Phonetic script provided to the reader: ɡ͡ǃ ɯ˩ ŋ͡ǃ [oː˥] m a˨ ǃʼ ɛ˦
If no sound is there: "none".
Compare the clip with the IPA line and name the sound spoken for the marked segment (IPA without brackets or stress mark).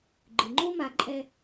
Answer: o˥